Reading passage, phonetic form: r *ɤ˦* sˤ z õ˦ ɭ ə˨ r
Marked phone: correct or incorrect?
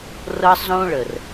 correct